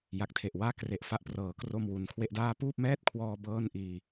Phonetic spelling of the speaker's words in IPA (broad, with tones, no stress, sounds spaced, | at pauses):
j a˨˩ k̚ tʰ e˨˩ ʔ w aː˥˩ k r e˨˩ ʔ f a˦˥ ʔ p r ɤː˩˦ k r o˧ m w u˩˦ n kʰ w e˦˥ ʔ d aː˥˩ p uː˥˩ p̚ m ɛː˥˩ t̚ kʰ w ɔː˧ b ɤː˥˩ n ʔ iː˧